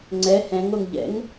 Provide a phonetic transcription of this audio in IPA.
ŋ͡ǀɛ hɛ̃ŋoŋ ʎɛ̰ŋ

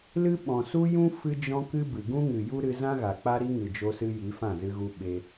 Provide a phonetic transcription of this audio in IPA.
lɨ˦ ɓɔ̃˨su˦ jũ˦ fɨ˦d͡ʒɔ̃˦kɨ˦ bɨ˨ɡũ˦ ŋɨ˨ju˦ɾɨ˧ zã˦ɣa˨ k͡pa˦ɾi˦ ŋɨ˨d͡ʒo˧sɨ˧ ji˨˦fã˦˨zɨ˧ɣu˧ ɓe˧

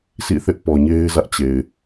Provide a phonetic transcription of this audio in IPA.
sʰḭ˦˨θɪ˦ʔ pɔ˨ɲe˦ɪ̯ zä˦ʔt͡ɕe˨ɪ̯

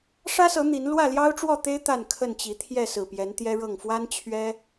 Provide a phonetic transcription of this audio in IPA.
ʂä˦sɤ˨˦ n̪i˨˦n lwä˥˨ljɑ˦ʊ̯ʈ͡ʂwɔ˥˨t̪e˦ɪ̯ t̪a˥˨nkʰə˥˨nt͡ɕi˨˦ t̪ʰjɛ˥˨sɹ̩˨˩pjɛ˨˦n t̪jɛ˦ɻɤ˥˨ŋ fwa˦nt͡ɕʰɥɛ˦

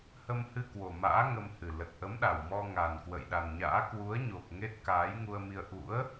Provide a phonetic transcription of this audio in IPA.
hə˧mhɨ˧ kwo˨˩ma̰ː˧˥ ŋə˧mhɨ˨˩ lə˨˩t̚ʔə˨˦mɗa˨˩w mɔ˧ ŋa˨˩nkwə̰˧˨jɗa˨˩nɲa̰ː˧˥ kwu˨˦ə̯ɲo˨˩k̚ ŋe˦˥t̚kaː˨˦j ŋu˧ə̯mi˧ə̯ ʔṵ˧˥ə̯

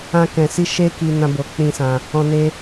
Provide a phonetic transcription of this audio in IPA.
ã˦kɛ̃˧si˦ ʃe˦ ki˧ nã˦bo˧ k͡pĩ˦sã˧ | ɔ̃˧ ne˦

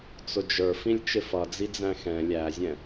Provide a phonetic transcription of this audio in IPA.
t͡sʊd͡ʒə˞ fĩlʲt͡ʃɪfʌd͡zi d͡zæ̃xɛ̃ lʲæzʲɛ̃

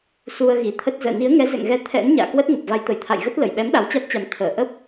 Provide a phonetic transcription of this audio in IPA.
su˧ə̯ɣi˧˩t̪ʰə˦˥t̚ zə̰ː˧˨ni˨˦ə̯ ŋɛ˨˦zɛ̰˧˨ŋɣɛ˧ t̪ʰɛ̰˧˥n ɲa̰ː˧˨ kwə˦˥t̚ŋə˨˩p̚ va˨˦jt̪ə˧˩jt̪ʰa̰˧˨jɣə˦˥t̚ lə˧˩jɓɛ˨˦m ɗa˨˦wt͡ɕa˦˥t̚t͡ɕa˨˦m t̪ʰəː˧˩ʔə˦˥p̚

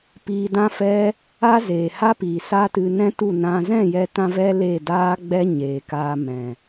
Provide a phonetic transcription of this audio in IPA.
piː˧dã˦fɛ˦ | a˦zeː˨ ha˦piː˨ sa˦tɨ˧nɛ̃˦ tu˦˨nã˧ zɛ̃˦˨jɛ˧tã˧vɛ˧ le˦˨daː˦ɡ͡bɛ˦ ɲeː˨kaː˧mɛ̃˨

